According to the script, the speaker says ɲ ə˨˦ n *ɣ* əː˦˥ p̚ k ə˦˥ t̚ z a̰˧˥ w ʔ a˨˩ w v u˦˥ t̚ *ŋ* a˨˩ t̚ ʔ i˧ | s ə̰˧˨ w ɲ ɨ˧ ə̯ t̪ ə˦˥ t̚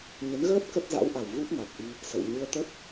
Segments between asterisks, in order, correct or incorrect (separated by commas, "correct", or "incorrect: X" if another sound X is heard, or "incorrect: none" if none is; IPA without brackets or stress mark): correct, correct